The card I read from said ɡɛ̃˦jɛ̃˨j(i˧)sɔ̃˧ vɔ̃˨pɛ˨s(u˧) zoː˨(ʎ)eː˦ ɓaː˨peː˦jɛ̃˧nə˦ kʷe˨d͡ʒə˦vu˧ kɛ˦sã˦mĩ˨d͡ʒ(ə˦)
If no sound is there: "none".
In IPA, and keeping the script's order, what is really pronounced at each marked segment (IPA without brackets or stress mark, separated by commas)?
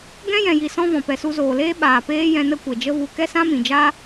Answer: i˨, u˧, l, a˦